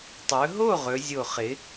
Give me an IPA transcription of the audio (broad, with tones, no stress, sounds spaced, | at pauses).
tˤ ɵ˩˧ ɦ o˥˨ ʁ ɵ˩˧ zʲ o˨˩ χ ɪ˩˧